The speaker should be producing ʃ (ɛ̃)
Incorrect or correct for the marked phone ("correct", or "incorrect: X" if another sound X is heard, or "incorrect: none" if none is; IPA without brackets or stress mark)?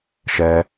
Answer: incorrect: ɛ